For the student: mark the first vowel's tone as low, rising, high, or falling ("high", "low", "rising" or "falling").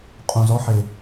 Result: low